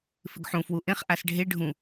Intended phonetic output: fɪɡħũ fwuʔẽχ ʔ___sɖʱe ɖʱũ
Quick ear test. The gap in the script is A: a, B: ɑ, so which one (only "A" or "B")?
A